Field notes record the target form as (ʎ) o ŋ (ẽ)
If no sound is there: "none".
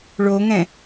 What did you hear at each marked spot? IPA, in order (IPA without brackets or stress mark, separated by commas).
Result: ɭ, ɛ̃